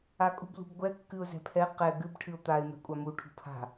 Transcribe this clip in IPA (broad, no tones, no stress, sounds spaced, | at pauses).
a kʼ ṳ b l ṳ b ɡʷ ɛ kː ɨ ʊ̯ z ɛ̤ pʰ ɛ q ɛ ɡ ɨ b ʈʰ ɨ ʊ̯ t̪ a ɪ̯ m ɛ̤ kʷʼ a m u ʈʰ ṳ pʰ a̤